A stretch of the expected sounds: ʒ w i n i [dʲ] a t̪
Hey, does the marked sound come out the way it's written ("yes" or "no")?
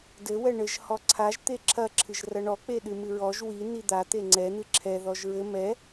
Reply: no